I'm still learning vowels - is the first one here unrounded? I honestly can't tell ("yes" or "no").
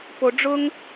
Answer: no